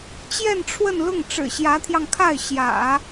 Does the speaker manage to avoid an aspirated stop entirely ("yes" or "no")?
no